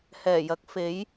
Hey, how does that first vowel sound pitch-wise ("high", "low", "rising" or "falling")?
low